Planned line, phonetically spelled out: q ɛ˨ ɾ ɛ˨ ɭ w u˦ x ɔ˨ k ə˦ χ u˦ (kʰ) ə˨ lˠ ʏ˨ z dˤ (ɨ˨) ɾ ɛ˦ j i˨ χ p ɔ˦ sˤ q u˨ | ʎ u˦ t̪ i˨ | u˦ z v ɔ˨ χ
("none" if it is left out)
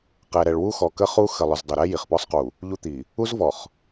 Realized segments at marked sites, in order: x, ʏ˨

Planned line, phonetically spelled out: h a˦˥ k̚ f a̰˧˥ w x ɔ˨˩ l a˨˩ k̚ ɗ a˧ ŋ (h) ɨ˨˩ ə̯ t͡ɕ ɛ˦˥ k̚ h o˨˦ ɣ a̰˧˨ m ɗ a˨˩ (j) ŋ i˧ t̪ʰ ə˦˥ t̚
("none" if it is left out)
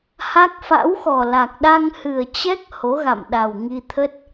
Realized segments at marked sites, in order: h, w

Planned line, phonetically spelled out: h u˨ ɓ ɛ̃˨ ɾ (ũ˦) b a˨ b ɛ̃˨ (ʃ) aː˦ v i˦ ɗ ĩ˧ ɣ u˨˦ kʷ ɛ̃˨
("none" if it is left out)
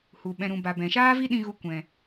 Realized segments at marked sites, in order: ũ˨, ʃ

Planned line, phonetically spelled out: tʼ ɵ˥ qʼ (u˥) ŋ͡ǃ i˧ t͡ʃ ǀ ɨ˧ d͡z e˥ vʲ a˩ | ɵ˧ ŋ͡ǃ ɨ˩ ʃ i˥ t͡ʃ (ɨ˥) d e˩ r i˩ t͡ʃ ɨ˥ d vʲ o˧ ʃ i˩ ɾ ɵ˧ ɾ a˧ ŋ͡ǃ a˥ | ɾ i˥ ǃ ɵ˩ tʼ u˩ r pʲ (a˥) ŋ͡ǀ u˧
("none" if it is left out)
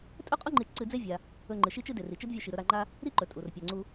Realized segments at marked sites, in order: u˥, ɨ˥, a˩

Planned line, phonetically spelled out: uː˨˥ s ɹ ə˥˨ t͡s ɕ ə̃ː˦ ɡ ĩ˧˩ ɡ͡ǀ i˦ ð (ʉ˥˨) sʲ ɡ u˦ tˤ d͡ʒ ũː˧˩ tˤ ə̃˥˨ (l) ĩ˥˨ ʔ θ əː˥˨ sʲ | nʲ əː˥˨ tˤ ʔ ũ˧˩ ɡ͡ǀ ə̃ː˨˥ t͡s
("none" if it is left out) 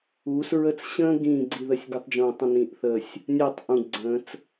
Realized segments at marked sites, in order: ə˥˨, n

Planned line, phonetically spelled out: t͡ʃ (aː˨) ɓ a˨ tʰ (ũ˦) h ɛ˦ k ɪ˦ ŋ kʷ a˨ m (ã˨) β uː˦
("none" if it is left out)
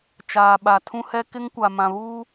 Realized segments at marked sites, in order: aː˨, ũ˦, ã˨

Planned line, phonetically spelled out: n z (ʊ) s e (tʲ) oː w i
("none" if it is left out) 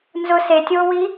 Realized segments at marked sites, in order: ʊ, tʲ

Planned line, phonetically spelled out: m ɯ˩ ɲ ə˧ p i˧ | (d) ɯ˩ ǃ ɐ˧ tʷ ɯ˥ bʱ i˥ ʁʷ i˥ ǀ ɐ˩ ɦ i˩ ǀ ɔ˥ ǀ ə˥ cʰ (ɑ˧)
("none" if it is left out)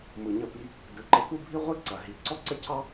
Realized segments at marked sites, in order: d, ɑ˥

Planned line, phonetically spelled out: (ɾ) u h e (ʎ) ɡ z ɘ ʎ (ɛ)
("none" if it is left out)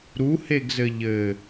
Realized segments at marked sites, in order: ɾ, none, ɘ

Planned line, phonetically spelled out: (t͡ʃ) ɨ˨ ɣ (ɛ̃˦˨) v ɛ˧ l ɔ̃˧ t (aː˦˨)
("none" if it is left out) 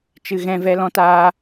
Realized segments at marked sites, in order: t͡ʃ, ɛ̃˦˨, aː˧

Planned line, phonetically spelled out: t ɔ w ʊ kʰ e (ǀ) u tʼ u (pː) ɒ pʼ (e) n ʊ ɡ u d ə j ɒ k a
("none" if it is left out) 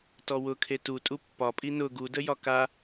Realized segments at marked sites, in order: t, pː, i

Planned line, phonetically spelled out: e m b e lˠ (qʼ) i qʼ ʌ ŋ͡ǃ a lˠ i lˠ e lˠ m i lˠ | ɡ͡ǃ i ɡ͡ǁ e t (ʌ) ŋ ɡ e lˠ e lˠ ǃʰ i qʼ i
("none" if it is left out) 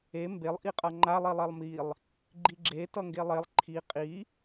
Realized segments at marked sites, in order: ʔ, ʌ

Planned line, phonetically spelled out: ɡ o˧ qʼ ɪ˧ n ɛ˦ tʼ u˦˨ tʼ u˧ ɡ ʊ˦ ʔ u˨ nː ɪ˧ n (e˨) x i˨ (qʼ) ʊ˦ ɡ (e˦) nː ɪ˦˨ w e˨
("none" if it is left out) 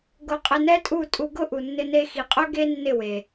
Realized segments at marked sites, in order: e˧, qʼ, e˦

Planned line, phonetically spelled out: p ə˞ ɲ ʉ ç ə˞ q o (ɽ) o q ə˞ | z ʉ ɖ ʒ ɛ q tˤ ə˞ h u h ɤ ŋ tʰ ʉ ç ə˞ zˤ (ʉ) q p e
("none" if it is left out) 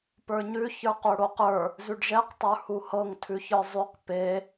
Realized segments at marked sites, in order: ɽ, ʉ

